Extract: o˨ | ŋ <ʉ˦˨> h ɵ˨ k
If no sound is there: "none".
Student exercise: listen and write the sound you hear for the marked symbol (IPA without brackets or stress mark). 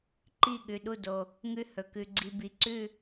ʉ˦˨